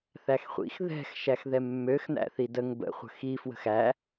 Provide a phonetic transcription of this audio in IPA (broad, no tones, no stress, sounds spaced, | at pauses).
θ æ x χʷ ḭ x ð ɛ̤ x ʃ æ x ð ɛ mː ø x n̪ æ̰ θ i d ə ŋ b ə̰ χʷ ə̤ x i f w ə̤ x æ